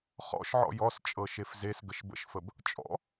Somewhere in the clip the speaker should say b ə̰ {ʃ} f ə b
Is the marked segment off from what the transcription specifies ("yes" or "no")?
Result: no